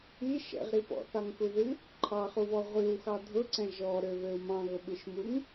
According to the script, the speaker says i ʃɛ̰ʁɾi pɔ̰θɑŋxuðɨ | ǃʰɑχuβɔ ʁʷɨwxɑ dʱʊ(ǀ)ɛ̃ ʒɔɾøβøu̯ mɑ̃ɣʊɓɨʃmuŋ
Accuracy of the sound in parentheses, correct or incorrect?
correct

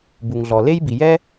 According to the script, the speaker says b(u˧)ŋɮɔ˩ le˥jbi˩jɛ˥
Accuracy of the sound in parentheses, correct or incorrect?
incorrect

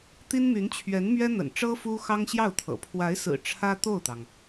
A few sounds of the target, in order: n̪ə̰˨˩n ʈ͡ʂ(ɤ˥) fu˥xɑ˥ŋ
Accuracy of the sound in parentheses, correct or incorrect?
correct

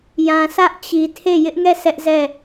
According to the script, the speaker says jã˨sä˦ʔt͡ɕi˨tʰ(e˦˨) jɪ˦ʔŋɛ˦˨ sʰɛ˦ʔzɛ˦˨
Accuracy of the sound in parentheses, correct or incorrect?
correct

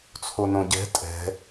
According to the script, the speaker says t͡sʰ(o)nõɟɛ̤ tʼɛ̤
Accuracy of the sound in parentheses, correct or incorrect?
correct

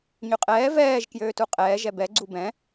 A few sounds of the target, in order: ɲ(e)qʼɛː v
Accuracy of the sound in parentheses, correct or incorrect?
incorrect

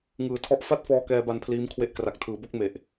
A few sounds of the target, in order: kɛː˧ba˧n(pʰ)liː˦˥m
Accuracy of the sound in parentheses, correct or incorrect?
correct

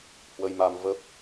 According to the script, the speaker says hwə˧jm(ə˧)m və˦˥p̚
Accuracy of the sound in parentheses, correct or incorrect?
incorrect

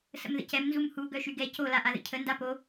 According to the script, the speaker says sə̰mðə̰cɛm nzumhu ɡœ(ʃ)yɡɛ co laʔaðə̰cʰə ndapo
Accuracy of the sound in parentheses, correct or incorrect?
correct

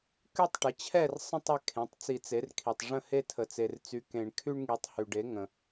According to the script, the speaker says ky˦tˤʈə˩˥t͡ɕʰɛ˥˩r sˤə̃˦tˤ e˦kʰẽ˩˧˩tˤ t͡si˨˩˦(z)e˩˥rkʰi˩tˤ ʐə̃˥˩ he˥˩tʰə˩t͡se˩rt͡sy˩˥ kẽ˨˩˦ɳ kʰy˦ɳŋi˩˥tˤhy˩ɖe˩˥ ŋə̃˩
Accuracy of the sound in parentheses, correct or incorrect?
incorrect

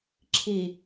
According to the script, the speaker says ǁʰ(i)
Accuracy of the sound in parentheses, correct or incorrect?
correct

